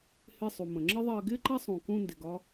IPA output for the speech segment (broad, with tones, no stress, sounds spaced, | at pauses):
h ɪ˧ sˤ u˩ m ə̃˩ ŋ͡ǁ ə˥ ðˤ ɜ˧ ɡ ɪ˥ ǃ a˥ sˤ ũ˩ k ũ˧ n d ɪ˩ ɡ ɒ˧